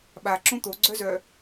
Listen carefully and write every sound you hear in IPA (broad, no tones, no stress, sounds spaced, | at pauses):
ɓ a ǁ õ t̪ o ɡ͡ǀ œ z œ